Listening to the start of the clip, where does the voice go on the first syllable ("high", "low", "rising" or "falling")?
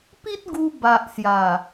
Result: high